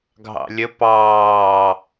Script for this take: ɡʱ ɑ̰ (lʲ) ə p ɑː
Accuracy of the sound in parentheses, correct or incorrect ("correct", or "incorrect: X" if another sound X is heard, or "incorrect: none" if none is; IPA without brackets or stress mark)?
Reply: correct